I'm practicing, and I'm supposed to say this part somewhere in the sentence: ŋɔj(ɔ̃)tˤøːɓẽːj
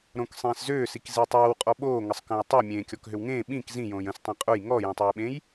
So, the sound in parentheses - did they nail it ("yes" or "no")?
yes